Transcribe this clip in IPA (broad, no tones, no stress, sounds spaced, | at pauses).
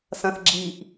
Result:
s ɐ̃ θ ɡ͡ǁ i ʔ